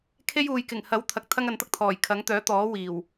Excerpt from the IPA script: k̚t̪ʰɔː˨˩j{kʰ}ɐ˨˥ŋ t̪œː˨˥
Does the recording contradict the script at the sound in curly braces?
no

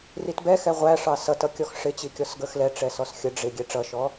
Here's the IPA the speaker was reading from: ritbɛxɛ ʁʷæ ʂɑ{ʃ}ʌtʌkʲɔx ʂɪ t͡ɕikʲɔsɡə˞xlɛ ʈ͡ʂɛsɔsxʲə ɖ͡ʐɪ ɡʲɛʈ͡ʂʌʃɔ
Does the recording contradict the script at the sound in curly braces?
yes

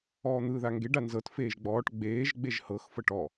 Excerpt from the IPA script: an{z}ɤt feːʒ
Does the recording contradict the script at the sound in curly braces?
no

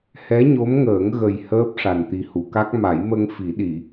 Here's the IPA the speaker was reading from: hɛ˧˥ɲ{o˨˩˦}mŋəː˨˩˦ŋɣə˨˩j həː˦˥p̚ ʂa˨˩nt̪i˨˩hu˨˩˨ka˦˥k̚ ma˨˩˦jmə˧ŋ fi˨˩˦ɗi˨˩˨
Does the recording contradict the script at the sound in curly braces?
yes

